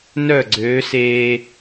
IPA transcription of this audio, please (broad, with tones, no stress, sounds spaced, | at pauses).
n œ˥˩ ɡ͡ǀ øː˨˥ s eː˦